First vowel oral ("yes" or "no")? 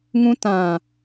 no